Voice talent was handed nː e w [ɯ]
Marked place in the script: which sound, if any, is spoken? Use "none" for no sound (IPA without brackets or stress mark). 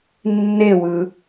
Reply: ɯ